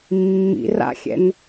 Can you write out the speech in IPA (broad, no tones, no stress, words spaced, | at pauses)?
mːḭra̰xʲɛ̰n